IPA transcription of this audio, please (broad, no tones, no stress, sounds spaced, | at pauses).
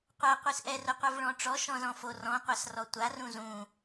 qʷ a qʷ i s ʔ ɛ r ʊ qʷ ɛ v ɭ ɔ̃ ʈ͡ʂ ɔ ʃ ɔ̃ z ɔ̃ f o r ɔ̃ qʷ a s r ɔ tʷ a r ũ z ũ